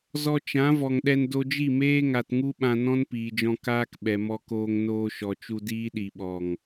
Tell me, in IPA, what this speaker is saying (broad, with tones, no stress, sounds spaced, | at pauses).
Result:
z ɔ˧ t͡ʃ ã˨˦ v ɔ˨ ŋ ɗ ɛ˧ n d o˧ d͡ʒ i˦˨ m eː˦ ŋ a˧ t ŋ u˦ ɓ ã˧ n ɔ̃˦ n p iː˨ d͡ʒ ɔ̃˧ k aː˦ k ɓ ɛ˨ m ɔ˧ k oː˧ ŋ n oː˧ ʃ ɔ˨ t͡ʃ u˧ d iː˦ ɗ i˨ ɓ ɔ˨ ŋ